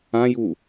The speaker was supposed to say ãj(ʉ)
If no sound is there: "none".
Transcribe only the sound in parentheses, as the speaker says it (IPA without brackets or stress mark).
u